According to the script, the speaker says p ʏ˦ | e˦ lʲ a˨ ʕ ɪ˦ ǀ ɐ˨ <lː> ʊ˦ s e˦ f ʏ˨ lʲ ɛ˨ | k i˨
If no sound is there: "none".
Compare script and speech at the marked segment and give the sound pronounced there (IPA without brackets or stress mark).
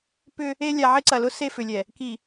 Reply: l